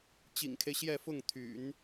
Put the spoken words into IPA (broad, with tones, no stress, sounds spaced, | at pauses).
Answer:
t͡ɕ ḭ˨˩ ŋ kʰ e˦ ɪ̯ ɕ j ɛ˥˧ f ʊ˥˩ ŋ t̪ʰ y̰˨˩˦ n